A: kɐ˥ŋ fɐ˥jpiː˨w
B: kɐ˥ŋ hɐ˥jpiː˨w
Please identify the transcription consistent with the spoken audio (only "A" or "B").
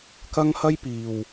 B